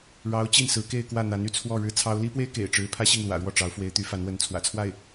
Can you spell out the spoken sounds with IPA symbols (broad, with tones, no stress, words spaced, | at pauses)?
ɻɑ˧˥ʊ̯ t͡ɕi˥˩nsɹ̩˧˥ ke˥˧ɪ̯kwä˥˩n̪a˧˥n y˥˧t͡sʰwɔ˥˩ ɻɻ̩˥t͡sʰɑ˥ʊ̯ li˥pwe˥ɪ̯ kḛ˨˩ɪ̯ʈ͡ʂɻ̩˧˥ pʰä˥ɕi˥˩ŋlwä̰˨˩ɻwɔ˥˩ ʈ͡ʂɑ˧˥ʊ̯fwe˧˥ɪ̯ t̪y˧˥fa˧˥nwə˧˥n t͡sʰwä̰˨˩t͡sʰwa˥˩ɪ̯